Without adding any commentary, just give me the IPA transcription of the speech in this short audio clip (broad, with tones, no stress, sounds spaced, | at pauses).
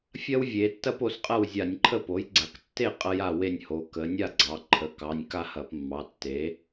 fʲ ɐ˥ w vʲ e˩˧ tː ɐ˥ p o˩˧ s qʼ ɐ˥˨ w zʲ a˧˩˧ nʲ ǃʰ ə˥˨ p o˩˥ j ɡ͡ǀ a˩˧ k tː e˥˨ qʼ ɐ˥ j a˥˨ w e˥˨ nʲ h o˩˧ k ə˩˧ nʲ a˥˨ ɡ͡ǀ ɑ˩˧ ǃʰ ə˩˧˩ k ɑ˩˧˩ nʲ k a˥˨ h ɐ˧˩˧ p mː ɑ˩˧˩ tː e˩˥